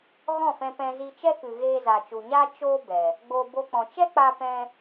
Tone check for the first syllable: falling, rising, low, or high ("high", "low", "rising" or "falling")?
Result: falling